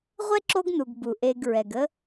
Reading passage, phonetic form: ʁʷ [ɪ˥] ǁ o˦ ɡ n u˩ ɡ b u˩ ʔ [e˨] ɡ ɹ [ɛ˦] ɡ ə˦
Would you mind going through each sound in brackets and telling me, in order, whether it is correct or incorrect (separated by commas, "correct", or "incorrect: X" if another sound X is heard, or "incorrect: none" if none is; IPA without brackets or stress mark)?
incorrect: ɛ˥, correct, incorrect: ɛ˩